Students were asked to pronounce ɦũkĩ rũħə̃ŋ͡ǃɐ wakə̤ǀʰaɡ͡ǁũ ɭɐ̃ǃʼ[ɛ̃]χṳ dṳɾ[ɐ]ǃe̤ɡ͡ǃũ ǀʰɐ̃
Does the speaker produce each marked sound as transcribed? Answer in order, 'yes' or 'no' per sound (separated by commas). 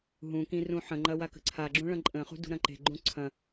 no, no